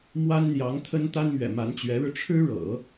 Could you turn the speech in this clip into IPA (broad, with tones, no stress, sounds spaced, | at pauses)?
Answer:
m w a˥ n n̪ j ɑ˧˥ ŋ t̪ʰ ə˥ n t̪ a˥ n m ɥ ɛ̰˨˩ m a˧˥ n t͡ɕ ɥ ɛ˧˥ ɻ ɻ̩˧ ʈ͡ʂʰ ɻ̩˥ ɻ ɤ̰˨˩˦